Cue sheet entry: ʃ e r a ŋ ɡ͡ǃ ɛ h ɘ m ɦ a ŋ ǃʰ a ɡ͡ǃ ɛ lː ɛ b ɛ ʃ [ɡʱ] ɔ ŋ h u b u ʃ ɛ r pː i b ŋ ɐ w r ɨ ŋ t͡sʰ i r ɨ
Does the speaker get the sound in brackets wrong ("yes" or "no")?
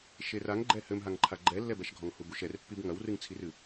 no